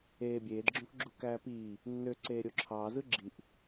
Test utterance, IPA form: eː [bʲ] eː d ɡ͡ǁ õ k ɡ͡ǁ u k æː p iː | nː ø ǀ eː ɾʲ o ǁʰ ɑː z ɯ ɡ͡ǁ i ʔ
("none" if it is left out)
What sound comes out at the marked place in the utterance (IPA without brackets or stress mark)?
bʲ